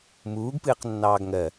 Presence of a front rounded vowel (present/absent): absent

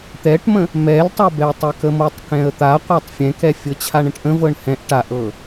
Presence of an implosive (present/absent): absent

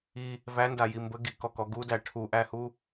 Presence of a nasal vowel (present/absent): absent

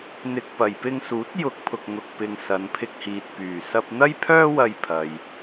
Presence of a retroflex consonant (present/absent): absent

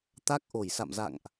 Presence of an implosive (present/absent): absent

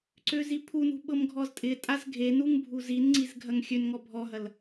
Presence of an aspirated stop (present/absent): present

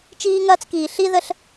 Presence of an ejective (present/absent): absent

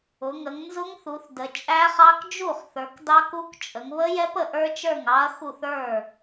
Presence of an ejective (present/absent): present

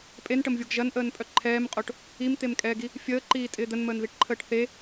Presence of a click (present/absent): present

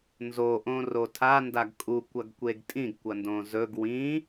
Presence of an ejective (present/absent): present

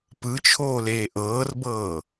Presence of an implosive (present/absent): absent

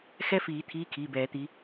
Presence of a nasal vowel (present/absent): absent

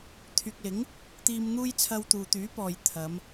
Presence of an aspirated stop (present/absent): present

